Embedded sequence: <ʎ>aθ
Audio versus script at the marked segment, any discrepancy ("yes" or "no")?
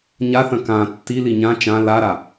yes